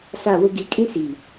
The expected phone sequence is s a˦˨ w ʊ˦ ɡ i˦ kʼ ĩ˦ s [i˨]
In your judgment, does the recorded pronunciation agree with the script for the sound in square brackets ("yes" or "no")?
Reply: yes